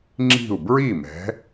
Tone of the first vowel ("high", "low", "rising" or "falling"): falling